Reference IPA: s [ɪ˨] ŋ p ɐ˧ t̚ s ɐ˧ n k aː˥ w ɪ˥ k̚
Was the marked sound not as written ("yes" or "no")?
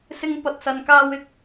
yes